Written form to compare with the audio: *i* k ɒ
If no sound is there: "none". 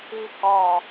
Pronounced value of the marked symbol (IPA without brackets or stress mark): i